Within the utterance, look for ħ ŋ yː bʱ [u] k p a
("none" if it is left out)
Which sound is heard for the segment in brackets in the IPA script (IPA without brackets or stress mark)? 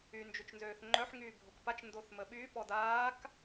o